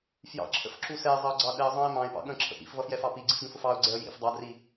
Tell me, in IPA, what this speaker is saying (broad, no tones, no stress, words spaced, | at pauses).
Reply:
fjɑ̰ǁʰə̰fǁu sɛɪ̯zˤʌʊ̯ɡ͡ǀɑ ɗɛə̯zˤɑ̃ɪ̯ mɑ̃ɪ̯pɑ̰ ɠə̃ǁʰə̰ pḭfvʌfjɛfɑ piɡ͡ǀifɡə̃fʊf ɑʊ̯ɡ͡ǀɛə̯ jḭf dˤɑdri